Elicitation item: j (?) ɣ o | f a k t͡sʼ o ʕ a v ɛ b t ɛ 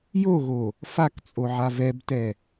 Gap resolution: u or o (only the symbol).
o